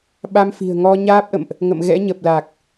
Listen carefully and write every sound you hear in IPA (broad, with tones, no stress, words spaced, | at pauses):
ɓa˧mfi̤˨˩ə̯ŋɔ˧ ɲaː˦˥p̚ʔə̰˧˨mʔ | ŋə̰˧˨mɣɛ̰˧˥ ɲə˨˩p̚la˨˩k̚